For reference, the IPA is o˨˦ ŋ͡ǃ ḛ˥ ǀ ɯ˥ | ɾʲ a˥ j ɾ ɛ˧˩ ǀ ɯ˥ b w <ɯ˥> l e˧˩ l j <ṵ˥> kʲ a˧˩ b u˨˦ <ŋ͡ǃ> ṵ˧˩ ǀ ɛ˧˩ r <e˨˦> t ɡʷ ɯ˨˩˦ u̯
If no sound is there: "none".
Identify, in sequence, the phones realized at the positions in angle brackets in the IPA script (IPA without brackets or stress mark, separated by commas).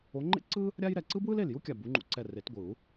ɯ˥, u˥, ŋ͡ǃ, e˨˩˦